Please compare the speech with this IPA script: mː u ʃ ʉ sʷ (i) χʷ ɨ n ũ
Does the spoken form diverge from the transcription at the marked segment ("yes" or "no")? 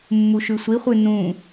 no